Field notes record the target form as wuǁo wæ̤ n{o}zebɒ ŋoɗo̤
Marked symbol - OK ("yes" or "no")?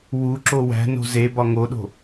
no